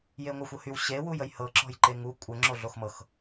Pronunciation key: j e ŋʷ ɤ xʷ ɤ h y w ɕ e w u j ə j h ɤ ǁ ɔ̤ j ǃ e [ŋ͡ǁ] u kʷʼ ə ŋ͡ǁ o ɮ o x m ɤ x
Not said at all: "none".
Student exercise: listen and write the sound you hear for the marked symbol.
ŋ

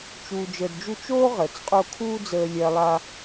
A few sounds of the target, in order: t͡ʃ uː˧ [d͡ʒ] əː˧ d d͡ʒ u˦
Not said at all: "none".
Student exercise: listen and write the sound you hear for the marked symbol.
d͡ʒ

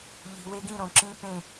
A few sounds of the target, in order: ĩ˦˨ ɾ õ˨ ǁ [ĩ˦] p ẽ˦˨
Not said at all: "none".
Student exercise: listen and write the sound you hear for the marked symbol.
ĩ˦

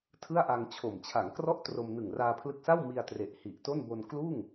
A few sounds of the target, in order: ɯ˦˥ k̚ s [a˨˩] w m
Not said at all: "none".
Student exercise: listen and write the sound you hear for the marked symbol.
a˥˩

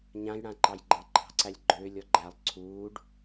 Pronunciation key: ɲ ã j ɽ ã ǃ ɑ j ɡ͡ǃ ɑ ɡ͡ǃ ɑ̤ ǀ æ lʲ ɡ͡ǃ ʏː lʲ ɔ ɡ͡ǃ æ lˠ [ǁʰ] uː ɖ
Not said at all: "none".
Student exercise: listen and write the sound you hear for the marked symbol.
ǀʰ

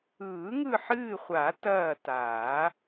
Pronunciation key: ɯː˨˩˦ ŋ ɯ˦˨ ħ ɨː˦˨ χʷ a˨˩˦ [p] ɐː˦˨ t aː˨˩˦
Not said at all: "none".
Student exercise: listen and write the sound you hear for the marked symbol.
t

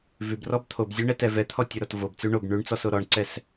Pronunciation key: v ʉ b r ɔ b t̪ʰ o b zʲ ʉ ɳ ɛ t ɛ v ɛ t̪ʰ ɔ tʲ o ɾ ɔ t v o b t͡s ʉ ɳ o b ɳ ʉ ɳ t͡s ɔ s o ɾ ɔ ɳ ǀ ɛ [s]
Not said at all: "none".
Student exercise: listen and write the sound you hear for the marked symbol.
s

